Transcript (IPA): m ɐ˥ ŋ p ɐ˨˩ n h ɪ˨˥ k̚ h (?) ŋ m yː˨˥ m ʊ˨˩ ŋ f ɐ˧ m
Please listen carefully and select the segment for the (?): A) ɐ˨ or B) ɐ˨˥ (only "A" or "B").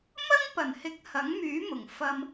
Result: B